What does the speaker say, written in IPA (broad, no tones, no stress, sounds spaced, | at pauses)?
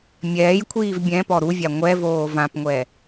mʲ ɛː j kʷʰ iː v bʲ ɛ̃ p ɔ ɾ u vʲ a ŋʷ ɛ v oː v ã p ŋʷ ɛ